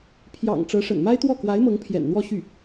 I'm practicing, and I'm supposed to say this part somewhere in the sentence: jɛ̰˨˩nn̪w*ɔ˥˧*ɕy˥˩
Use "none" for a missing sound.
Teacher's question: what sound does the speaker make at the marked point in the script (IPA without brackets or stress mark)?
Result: ɔ˥˧